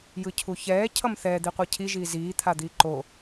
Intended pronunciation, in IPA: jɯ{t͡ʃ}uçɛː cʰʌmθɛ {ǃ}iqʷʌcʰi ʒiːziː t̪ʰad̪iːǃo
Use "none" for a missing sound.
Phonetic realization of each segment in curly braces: cʰ, d̪

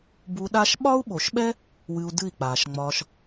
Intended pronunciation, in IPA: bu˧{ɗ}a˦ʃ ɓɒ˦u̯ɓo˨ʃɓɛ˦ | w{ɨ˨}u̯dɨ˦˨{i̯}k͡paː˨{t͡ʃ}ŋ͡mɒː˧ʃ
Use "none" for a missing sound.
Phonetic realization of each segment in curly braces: ɗ, ɨ˧, i̯, ʃ

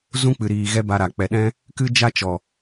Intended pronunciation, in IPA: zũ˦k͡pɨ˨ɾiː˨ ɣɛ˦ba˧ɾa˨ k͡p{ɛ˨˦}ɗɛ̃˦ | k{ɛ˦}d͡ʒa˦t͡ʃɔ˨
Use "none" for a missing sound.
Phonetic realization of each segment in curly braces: ɛ˨, ɨ˦

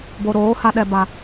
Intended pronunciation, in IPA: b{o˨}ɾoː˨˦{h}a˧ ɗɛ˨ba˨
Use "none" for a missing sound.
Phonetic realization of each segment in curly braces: o˨, h

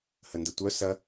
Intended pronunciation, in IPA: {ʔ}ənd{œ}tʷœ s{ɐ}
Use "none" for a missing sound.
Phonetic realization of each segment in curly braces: h, ə, ɐ

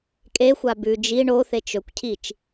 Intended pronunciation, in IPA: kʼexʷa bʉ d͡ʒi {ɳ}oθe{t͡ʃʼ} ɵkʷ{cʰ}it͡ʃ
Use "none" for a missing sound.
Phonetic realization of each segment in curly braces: ɳ, t͡ʃ, cʰ

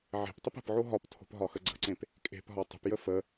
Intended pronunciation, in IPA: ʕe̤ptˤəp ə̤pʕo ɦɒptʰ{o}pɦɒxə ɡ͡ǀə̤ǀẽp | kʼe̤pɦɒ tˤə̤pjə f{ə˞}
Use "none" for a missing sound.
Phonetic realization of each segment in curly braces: o̤, ə

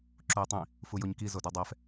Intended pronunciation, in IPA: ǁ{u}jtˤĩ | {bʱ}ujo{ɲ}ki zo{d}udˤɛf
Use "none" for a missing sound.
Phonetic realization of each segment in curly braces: u, f, ɲ, d

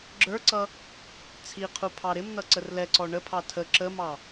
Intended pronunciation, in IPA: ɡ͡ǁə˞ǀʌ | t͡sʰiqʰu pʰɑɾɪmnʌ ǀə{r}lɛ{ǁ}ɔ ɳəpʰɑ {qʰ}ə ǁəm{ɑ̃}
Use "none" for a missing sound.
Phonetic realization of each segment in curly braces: r, ǀ, tʰ, ɑ

